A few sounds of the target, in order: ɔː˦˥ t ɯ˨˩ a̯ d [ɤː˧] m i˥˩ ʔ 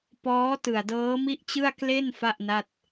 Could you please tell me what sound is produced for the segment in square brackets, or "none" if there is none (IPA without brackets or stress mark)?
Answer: ɤː˦˥